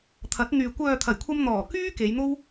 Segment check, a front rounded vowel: present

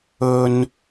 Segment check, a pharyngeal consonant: absent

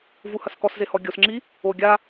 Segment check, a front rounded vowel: absent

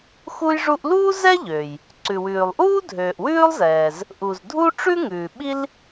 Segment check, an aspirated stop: absent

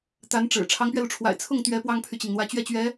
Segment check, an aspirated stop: present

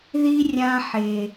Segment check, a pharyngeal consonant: present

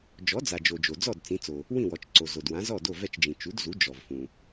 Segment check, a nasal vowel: present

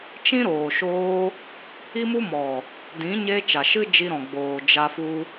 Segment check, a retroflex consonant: absent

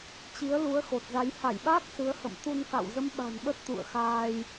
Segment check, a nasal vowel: absent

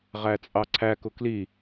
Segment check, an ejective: present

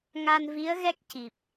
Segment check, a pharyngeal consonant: absent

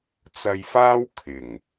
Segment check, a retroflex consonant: absent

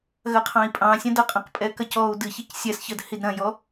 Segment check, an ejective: present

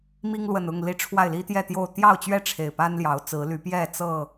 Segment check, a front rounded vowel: present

